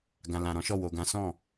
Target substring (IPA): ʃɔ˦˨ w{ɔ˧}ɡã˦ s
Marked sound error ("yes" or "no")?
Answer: yes